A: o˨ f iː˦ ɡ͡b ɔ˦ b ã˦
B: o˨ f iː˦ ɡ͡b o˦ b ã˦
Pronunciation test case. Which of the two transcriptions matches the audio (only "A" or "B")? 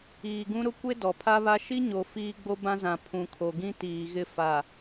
B